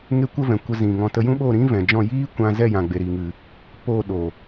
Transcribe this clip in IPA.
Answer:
ŋ e˦ kʷ ə˦ v ɛ̃˨ kʷ ə˧ z ĩ˨ ŋ ɔ̃˧ t ə˧ j ũ˦ ɓ o˦˨ ɾ ĩ˦ v ɛ̃˨ d͡ʒ ɔ̃˦˨ j iː˦ kʷ ã˧ z ɛ˦˨ j ã˨ ɡ͡b e˨ ɾ i˨ ŋ ɨ˨ | p o˦˨ ɗ o˨

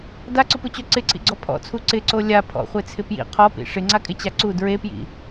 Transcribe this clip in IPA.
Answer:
d a ǀ ʊ p u t͡ɕ o ǀ ɪ ǀʰ ḭ ɡ͡ǀ ɔ pʰ ɔ̰ t͡sʰ u ǀ ɪ ǀ o lʲ a pʰ ɔ̰ χʷ e t͡sʰ ɪ p j ḭ qʰ ɔ p ḭ ʂ ɪ ŋ͡ǀ a kʼ ɪ t͡ɕ a ǀ u d ɹ e p j ḭ

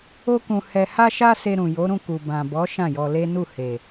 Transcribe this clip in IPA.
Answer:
o˦ k ũ˧ h ɛ˧ h a˦ ʃ a˦ s e˧ ɾ ũ˨ j o˨˦ ɾ ũ˦˨ k u˨ b ã˨ b ɔ˨˦ ʃ ã˦˨ j ɔ˧ l e˦ n u˦˨ h e˨

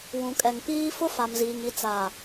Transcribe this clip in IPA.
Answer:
w ũ˨ kʼ ɛ˨ ŋ p iː˦ f ʊ˦ f a˨ m z iː˨ ŋ i˨ t͡s a˨

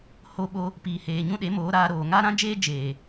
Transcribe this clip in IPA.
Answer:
h o˧ ɓ o˧ | p iː˨ h eː˨ ɲ ũ˦ ɗ e˨˦ m oː˨˦ ɾ aː˧ ɾ oː˨ ŋ aː˦ ɾ ã˦ d͡ʒ eː˦ d͡ʒ eː˨

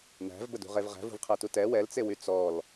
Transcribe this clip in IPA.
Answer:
n æ̤ v b ə d ṳ ʁ e v ʁ æ̤ v ṳ v qʰ æ t u t ɛ w ɛ l t͡s e w y t͡s ɔ l

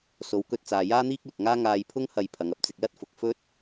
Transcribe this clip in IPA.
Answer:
s o˨˧ w k ɵ˧ t̚ t͡s aː˨ j aː˥ n̪ iː˥ k̚ l ʊ˨ k̚ ŋ aː˥ ŋ aː˧ j pʰ ʊ˥ ŋ h ɐ˧ j pʰ ɐ˨˧ ŋ ɐ˨˥ p̚ t͡s ɪ˧ k̚ l ɐ˥ t̚ f ʊ˨ k̚ f ɵ˥ t̚

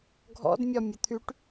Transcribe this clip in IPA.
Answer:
ɡʱ ɔ̰ d mʲ ɒ mʲ o t̪ʰ y ʈ

